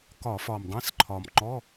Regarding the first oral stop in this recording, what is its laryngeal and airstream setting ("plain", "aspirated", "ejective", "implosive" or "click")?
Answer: plain